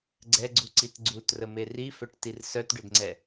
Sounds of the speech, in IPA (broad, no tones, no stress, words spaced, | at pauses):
ɡ͡ǀɛɡ͡ǀuǀit ɡ͡ǀutrəme rifœʈtir sœtɖødŋ͡ǀɛ